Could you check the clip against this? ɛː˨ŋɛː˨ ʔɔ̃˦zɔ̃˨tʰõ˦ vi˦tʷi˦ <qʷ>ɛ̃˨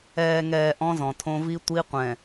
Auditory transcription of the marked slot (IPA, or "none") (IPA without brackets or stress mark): qʷ